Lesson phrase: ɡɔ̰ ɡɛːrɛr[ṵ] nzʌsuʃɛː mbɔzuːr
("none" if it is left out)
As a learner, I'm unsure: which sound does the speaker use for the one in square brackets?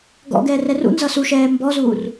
ṵ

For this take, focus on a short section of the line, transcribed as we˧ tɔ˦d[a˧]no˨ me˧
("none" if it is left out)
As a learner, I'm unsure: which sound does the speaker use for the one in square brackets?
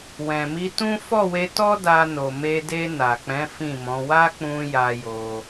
a˧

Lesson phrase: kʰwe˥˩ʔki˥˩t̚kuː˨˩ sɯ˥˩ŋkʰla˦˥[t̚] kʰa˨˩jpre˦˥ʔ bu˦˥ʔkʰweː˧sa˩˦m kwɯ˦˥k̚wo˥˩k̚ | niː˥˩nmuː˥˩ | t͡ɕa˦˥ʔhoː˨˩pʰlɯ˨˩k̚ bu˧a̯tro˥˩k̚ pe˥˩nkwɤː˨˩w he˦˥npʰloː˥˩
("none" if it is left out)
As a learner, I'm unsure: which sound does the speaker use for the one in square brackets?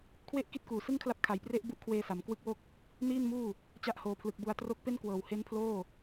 p̚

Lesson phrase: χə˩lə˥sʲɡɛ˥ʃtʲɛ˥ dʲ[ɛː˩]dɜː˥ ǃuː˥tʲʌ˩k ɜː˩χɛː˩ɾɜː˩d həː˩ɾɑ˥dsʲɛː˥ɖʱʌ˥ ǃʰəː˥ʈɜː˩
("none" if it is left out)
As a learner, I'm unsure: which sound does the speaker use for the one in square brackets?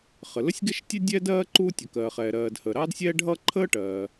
ɛː˥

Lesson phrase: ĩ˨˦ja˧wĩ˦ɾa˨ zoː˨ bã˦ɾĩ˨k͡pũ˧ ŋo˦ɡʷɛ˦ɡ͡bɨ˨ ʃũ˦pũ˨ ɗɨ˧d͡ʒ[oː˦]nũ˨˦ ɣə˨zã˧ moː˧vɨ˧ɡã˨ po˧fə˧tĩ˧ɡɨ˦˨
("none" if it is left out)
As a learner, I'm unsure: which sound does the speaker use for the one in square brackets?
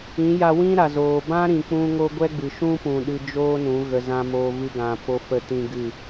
oː˦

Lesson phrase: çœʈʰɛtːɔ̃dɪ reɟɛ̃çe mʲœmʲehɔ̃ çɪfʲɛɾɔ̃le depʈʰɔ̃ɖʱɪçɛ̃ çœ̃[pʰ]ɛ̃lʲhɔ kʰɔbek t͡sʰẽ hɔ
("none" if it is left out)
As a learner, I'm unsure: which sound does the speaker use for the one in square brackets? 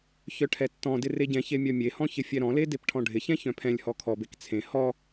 pʰ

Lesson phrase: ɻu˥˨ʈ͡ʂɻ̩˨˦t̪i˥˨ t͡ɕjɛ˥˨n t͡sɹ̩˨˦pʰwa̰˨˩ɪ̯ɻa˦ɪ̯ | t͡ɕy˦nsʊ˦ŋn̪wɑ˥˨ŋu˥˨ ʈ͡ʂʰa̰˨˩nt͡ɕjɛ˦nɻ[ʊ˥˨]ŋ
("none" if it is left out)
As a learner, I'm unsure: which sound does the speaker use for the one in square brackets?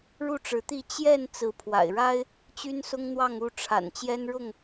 ʊ˥˨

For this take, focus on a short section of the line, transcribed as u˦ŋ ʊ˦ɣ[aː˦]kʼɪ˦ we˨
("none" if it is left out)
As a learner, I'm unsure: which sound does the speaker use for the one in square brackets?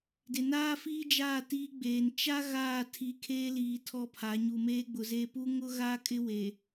aː˦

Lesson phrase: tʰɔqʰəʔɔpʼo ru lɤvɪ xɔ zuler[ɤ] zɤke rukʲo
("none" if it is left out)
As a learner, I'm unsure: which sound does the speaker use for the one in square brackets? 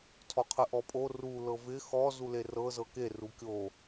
ɤ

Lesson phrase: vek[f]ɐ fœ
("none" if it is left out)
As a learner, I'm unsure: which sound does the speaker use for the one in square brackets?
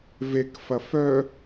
f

